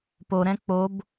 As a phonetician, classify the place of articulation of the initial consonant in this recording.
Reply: labial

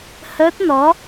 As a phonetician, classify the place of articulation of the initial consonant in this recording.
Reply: glottal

